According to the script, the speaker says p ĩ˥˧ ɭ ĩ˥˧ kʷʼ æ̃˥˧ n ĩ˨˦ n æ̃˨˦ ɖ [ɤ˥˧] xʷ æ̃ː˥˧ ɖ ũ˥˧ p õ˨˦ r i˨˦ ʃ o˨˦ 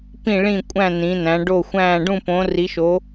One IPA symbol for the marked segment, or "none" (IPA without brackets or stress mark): o˥˧